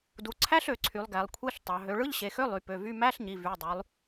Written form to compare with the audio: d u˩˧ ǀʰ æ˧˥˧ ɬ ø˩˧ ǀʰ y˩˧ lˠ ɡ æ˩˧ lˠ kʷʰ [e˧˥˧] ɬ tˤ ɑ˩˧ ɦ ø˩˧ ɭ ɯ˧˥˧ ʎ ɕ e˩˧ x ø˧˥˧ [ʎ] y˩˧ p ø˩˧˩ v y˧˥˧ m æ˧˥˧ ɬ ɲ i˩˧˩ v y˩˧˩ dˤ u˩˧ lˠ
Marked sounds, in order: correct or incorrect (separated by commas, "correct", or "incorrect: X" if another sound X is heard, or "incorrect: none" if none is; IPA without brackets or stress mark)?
correct, incorrect: lˠ